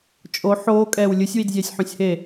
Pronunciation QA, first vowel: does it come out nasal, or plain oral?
oral